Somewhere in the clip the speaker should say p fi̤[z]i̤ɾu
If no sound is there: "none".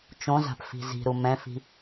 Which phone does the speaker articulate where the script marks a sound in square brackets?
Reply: z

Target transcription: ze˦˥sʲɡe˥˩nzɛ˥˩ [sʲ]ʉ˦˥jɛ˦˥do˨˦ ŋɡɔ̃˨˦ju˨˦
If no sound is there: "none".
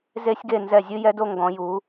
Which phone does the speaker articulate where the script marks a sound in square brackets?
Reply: zʲ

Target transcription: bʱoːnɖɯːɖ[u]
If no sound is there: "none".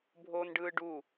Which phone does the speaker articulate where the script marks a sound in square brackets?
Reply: u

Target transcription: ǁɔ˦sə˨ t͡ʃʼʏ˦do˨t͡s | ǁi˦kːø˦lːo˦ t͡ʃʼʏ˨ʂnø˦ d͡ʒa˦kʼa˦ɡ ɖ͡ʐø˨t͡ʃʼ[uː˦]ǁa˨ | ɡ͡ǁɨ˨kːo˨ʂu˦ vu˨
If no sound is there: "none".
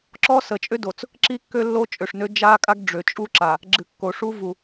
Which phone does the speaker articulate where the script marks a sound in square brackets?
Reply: u˦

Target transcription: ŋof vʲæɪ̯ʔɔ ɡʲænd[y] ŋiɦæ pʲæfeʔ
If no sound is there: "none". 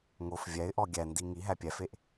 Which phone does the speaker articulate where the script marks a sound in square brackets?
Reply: i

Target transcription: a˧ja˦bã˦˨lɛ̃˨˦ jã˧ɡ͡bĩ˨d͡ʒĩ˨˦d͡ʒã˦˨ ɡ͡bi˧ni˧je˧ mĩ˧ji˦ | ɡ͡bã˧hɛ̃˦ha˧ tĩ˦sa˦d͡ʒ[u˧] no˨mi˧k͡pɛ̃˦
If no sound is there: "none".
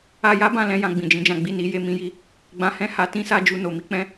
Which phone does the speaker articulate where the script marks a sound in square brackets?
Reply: u˧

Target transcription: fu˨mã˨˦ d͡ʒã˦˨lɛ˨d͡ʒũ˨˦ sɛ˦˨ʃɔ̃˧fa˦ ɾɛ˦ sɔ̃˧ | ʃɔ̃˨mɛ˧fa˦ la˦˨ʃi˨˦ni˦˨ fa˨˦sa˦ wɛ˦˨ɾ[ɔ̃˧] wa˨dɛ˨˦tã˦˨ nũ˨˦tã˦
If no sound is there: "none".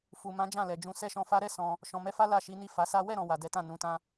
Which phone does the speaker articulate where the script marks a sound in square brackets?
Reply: ɔ̃˨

